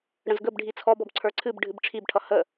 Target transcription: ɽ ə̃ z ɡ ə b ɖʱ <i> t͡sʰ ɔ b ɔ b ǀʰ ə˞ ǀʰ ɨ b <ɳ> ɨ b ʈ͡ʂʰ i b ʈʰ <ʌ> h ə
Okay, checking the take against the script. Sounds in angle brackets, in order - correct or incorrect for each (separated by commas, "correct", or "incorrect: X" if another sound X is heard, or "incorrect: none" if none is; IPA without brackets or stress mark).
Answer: correct, incorrect: ɖʱ, correct